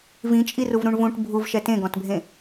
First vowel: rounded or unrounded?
unrounded